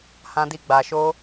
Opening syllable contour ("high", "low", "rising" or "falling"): low